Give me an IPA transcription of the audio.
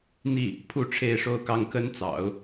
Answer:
n̪ i˥˩ | pʰ u˥˧ ʈ͡ʂʰ e˥˧ ɪ̯ ʂ o˥˩ ʊ̯ k ɑ˥ ŋ k ə˥ n t͡s ɑ̰˨˩˦ ʊ̯

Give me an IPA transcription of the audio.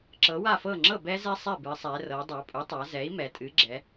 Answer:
ǁ ɤ˩˥ w a˥˩ f ɤ˥˩ ŋ͡ǁ ɤ˥˩ b ɛ˦˥ z ɛ˦˥ sˤ ɛ˥˩ b ɨ˩˧ sˤ ɛ˩˧ r ɤ˩˧ dˤ a˩˧ pʼ u˩˥ tˤ a˩˧ z ɛ˩˥ i̯ m ɛ˩˧ tʼ ɨ˩˥ ɡ͡ǁ ɛ˩˧

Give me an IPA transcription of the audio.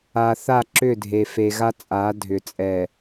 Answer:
a˨ θ a˦˨ ǁ ʏ˦˨ dʱ e˨ f e˨ ɣ a˦ t͡sʼ a˨˦ dʱ ʏ˨ t͡sʼ ɛ˨

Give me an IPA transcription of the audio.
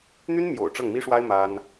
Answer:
n̪ y˥ n m j o̰˨˩ ʊ̯ ʈ͡ʂ ɤ˥˩ ŋ m i˥ ʂ w a˥ ɪ̯ m a˥ n

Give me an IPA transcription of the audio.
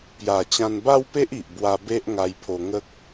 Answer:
p j a˨˩ t͡ɕ ã˧ n b a˦ w p e˦ ʔ i˨ ʔ b w a˧ b e˦ ʔ ŋ a˧ j pʰ o˧ ŋ ə˦ k̚

